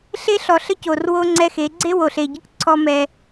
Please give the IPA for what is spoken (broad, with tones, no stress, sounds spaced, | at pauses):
ɬ e˦ ɬ ɔ˨ ɬ ə˦ c o˨ r w o˦ ŋ͡ǀ ɛ˦ x e˨˦ ɡ͡ǀ e˦ w o˨ ɬ e˨ ɟ ɨ˦ k ǀʰ ɔ˦ m ɛ˦